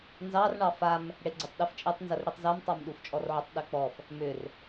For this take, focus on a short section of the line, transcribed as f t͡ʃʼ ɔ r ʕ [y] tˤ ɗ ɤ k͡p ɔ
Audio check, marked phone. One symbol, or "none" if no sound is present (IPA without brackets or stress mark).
ʏ